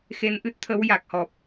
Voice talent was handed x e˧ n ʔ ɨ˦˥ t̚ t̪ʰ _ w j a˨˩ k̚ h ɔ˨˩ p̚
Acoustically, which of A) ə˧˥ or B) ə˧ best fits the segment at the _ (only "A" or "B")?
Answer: A